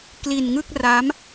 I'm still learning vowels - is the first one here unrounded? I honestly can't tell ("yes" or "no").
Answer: yes